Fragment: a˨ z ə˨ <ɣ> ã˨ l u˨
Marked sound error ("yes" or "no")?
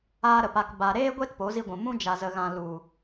no